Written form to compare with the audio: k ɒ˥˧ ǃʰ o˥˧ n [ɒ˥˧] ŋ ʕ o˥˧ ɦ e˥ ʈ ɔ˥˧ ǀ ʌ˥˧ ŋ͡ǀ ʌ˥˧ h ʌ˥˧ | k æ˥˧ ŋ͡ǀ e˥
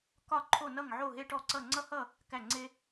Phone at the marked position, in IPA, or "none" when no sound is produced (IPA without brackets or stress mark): ʌ˥˧